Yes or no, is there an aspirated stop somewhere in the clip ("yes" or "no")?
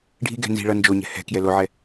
no